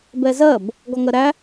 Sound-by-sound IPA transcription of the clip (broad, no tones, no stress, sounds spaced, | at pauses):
b ɛ z ɜ b | ɡ ɔ ŋ ɜ ɾ æ